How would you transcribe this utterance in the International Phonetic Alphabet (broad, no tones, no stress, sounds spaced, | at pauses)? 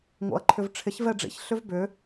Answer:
ŋ o̰ ɐ̯ ǃʰ ʏ v ʈ͡ʂʰ ɪ ç v ɛ ɖ͡ʐ ḭ ç ɬ ʏ v b ʏ